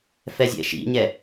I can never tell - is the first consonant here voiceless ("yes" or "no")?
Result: yes